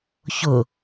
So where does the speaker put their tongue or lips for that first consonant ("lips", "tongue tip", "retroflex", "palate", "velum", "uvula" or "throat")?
palate